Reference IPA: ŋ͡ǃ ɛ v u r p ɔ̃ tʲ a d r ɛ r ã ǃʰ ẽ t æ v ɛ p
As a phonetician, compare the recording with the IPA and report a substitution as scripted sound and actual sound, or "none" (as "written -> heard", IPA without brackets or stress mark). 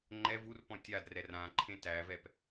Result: none